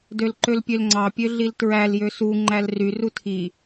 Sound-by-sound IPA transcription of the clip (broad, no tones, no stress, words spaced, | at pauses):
dølǃølpʲølŋ͡ǀɑ pʲøɮiltɹæl jøsu ŋ͡ǃælry rutʰi